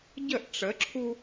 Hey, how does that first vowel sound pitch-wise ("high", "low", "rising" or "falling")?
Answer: falling